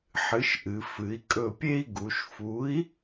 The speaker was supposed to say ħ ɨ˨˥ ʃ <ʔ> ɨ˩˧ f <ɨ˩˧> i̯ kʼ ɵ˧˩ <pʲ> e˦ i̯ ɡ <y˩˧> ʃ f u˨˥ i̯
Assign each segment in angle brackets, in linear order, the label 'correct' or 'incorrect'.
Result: correct, correct, correct, incorrect

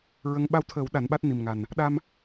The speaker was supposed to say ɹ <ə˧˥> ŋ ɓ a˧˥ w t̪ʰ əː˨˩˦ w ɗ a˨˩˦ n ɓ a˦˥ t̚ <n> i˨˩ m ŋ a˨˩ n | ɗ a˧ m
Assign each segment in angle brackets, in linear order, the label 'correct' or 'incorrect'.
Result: correct, correct

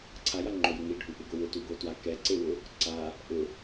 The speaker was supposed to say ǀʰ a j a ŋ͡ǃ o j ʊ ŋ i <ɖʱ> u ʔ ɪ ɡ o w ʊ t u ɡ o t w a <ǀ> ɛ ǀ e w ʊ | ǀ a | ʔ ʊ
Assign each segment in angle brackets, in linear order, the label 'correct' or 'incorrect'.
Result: correct, incorrect

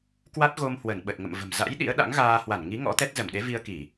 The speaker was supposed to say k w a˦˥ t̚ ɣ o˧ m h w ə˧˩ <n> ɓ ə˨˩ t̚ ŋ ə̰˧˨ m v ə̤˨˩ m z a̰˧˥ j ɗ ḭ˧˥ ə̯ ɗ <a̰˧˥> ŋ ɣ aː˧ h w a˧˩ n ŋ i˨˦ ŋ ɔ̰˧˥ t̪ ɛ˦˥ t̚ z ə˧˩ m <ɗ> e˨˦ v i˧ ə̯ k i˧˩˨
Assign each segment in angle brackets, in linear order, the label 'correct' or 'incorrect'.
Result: correct, correct, correct

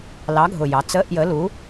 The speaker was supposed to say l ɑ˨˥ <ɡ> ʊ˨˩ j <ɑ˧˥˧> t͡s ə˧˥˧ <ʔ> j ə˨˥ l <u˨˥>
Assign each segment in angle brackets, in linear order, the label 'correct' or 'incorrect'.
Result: incorrect, incorrect, correct, correct

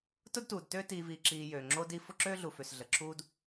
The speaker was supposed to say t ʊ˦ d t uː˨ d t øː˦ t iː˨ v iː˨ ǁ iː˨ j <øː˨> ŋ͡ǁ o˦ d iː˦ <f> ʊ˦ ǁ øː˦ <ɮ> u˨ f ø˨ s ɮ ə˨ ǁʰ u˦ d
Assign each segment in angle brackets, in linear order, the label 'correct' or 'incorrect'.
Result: correct, correct, correct

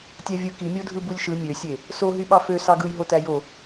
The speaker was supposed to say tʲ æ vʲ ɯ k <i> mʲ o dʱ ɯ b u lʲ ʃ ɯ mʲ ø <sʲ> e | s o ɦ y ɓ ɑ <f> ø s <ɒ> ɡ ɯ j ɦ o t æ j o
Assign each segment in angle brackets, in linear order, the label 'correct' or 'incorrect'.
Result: correct, correct, correct, incorrect

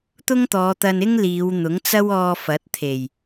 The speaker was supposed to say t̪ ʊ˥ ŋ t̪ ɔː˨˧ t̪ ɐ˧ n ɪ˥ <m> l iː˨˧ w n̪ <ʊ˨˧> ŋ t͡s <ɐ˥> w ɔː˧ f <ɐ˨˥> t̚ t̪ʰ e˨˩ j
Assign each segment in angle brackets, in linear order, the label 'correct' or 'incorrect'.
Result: incorrect, incorrect, correct, correct

